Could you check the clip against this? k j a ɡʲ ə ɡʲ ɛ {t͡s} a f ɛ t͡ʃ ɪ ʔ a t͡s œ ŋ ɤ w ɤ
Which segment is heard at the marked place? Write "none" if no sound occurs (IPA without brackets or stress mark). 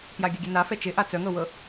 n